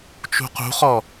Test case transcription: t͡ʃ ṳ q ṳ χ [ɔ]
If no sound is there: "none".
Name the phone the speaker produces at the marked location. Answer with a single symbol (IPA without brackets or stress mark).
ɔ